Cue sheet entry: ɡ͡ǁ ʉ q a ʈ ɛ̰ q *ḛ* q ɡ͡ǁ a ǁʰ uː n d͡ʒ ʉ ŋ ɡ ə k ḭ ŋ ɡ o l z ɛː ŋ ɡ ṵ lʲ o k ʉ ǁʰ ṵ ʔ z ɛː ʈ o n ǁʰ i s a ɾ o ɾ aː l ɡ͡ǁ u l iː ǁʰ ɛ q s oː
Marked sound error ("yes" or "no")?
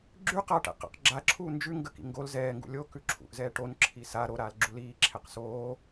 yes